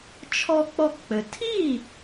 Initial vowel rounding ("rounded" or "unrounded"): rounded